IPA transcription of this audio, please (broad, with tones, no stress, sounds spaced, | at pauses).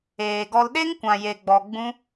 eː˨ ɡ ɔ˧ l ɗ e˦ ŋ kʷ ã˨ j e˨ ɡ͡b ɔ˨ ɡ͡b ũ˦